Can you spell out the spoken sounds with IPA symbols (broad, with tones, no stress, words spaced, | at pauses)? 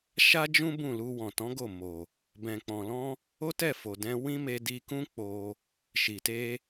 ʃa˦d͡ʒũ˦ bũ˦˨lu˧ wɔ̃˨tɔ̃˨˦ɡo˦˨ mo˨ | bɛ̃˨k͡pɔ̃˨lɔ̃˧ | o˦tɛ˦˨fo˨dɛ̃˧ wĩ˦me˧ di˧kũ˦ k͡po˧ | ʃi˨te˧